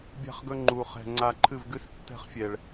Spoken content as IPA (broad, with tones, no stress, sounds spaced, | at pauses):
bʲ a̤˦ χ ɡ ɵ˦ ŋ͡ǃ u˧ χ ɛ̤˧ ŋ͡ǀ a˧ ǃʰ ɨ˦˨ v ɡ ɨ˦ s tː ɛ̤˦˨ χ fʲ ɛ˨ ɭ